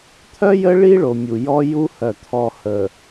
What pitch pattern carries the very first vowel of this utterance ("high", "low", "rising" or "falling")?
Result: high